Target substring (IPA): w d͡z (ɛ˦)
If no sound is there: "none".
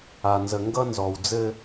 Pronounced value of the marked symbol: ɘ˦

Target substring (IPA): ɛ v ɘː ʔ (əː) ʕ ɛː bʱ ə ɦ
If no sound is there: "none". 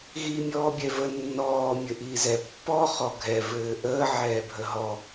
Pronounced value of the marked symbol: əː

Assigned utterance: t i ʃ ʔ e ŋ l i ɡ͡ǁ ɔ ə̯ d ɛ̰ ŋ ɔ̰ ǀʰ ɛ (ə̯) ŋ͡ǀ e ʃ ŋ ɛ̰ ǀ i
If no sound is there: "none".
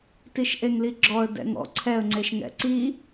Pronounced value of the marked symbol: ə̯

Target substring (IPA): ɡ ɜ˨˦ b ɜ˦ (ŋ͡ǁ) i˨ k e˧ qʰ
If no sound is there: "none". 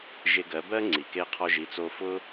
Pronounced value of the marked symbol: ŋ͡ǀ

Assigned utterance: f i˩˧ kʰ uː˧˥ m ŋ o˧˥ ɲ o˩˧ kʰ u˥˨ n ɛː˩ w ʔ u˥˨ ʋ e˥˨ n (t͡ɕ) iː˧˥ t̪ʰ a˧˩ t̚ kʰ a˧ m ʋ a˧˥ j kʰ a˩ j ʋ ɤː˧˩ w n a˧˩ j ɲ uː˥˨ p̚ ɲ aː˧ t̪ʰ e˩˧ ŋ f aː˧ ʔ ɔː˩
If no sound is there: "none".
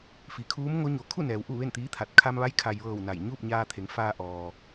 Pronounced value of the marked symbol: t̪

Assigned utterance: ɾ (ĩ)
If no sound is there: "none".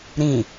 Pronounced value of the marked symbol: ĩ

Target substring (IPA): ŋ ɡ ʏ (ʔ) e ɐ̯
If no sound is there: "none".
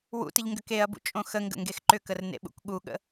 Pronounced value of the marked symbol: k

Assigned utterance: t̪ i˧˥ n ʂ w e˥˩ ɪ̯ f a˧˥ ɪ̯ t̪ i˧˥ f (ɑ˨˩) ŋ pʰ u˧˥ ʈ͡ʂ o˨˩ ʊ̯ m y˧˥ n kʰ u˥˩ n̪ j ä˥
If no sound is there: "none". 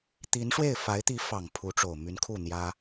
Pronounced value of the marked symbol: ɑ˨˩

